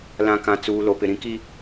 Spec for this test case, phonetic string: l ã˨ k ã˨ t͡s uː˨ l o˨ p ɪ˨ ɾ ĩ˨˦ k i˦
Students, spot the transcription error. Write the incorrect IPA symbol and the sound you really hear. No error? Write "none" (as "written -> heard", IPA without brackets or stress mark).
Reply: none